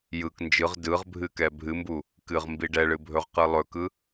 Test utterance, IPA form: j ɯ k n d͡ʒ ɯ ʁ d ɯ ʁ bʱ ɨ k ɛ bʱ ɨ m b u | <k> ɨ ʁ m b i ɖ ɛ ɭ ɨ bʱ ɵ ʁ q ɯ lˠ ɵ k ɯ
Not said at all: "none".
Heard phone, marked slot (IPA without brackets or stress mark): k